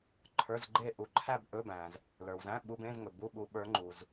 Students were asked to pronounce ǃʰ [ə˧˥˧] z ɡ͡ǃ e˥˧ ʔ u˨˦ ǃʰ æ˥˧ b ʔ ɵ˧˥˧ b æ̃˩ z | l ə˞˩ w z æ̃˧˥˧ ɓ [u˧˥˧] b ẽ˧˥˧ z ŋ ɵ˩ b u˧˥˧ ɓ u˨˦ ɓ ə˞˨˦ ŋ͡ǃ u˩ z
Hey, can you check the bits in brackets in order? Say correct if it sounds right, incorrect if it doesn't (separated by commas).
incorrect, correct